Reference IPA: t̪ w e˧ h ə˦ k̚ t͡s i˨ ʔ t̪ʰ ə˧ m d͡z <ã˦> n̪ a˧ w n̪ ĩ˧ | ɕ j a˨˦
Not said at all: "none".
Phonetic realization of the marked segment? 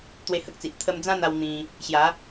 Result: ã˦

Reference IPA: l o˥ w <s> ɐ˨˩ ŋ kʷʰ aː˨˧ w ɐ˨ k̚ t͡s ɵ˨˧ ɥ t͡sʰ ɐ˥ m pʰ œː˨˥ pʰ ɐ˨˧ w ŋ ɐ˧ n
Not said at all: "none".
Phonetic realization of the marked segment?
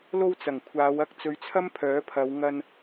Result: t͡s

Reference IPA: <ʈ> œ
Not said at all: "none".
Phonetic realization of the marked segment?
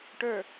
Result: ʈ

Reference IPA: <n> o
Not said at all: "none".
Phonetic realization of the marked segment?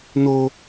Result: n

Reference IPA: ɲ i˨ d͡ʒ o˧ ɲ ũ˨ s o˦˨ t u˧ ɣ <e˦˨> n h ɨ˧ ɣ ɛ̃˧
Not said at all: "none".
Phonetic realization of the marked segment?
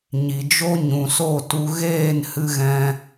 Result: eː˦˨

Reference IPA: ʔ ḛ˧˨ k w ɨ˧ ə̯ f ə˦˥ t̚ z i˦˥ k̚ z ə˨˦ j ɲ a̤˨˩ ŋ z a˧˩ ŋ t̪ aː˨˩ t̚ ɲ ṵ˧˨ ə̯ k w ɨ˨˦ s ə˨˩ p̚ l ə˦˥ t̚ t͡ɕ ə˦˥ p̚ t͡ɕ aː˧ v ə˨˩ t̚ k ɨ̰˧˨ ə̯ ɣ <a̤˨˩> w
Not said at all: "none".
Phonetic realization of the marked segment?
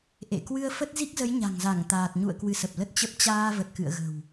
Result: ə̤˨˩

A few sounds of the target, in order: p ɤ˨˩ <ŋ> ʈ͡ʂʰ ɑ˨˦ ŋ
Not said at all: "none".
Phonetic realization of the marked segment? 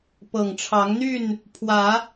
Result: ŋ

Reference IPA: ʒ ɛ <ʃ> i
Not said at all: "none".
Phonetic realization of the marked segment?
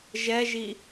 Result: ʒ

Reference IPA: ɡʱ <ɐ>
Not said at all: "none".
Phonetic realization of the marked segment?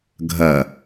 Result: ɐ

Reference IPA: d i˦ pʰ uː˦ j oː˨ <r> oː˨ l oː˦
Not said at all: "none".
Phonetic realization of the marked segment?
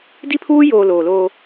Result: l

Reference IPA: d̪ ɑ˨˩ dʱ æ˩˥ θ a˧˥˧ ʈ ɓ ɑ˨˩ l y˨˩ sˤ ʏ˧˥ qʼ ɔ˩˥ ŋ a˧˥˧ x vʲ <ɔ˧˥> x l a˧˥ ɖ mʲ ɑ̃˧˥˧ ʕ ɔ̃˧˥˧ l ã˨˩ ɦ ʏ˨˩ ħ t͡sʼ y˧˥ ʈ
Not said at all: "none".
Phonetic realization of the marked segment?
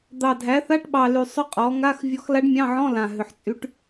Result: ɔ˧˥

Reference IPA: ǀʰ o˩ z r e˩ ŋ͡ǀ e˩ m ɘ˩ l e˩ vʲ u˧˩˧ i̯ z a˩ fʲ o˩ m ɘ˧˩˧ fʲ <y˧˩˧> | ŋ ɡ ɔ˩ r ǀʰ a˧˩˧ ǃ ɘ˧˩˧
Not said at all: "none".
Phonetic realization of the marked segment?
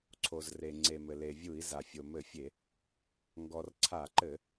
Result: e˧˩˧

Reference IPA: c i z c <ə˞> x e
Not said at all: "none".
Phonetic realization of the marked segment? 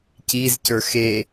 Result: ə˞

